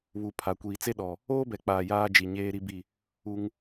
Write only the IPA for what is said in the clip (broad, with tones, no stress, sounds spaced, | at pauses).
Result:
β u˨ pʰ a˨ kʷ iː˨ t͡s e˦ ɗ ɔ˨ | oː˦ b ɛ˨ k͡p aː˨ j aː˦ d͡ʒ i˨ ɲ eː˦ ɾ i˦ b i˦˨ | u˦ ŋ